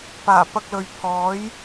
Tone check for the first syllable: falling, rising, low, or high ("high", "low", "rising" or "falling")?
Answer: low